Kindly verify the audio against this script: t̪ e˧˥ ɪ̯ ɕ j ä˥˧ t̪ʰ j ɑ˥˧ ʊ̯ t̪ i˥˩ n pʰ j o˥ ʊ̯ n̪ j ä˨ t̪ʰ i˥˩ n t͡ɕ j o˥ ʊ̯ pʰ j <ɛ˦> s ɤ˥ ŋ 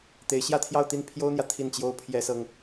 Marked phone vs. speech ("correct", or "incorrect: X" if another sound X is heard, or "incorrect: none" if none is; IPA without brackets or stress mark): incorrect: ɛ˥